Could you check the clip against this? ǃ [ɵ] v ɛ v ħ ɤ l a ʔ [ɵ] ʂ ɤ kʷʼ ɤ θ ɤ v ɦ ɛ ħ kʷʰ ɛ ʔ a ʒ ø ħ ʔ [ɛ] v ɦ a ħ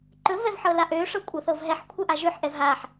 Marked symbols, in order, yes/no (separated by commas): yes, no, yes